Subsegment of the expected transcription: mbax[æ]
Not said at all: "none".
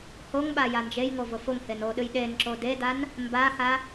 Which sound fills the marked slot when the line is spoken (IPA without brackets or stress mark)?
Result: a